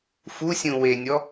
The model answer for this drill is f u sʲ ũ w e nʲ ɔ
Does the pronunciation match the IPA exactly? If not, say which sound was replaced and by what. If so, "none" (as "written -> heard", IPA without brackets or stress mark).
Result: none